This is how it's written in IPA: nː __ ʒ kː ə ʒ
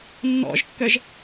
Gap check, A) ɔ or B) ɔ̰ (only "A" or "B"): B